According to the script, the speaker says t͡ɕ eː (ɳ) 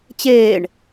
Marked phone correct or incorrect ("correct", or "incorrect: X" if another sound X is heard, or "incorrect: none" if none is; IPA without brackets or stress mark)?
correct